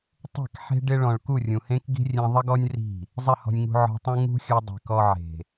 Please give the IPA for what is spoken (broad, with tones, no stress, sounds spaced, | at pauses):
tˤ e̤˦˨ k ħ e̤˦ ɖ ɪ˦ ɭ ɔ̃˨ ɭ k u˦˨ rʲ ũ˨ h ẽ˦ k ɡ i̤˦ rʲ ẽ˧ ðˤ ɪ˦ ɡ ɔ˦ nʲ r i̤˦˨ | zˤ ɪ˦˨ h ɔ̤˧ nʲ ŋ ṳ˧ ʕ ɔ̤˧ tˤ ũ˦ ŋ ṳ˦ xʲ u˧ dˤ i̤˨ k ɔ˧ ʕ e̤˨